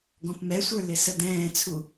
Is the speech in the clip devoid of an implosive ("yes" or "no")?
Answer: yes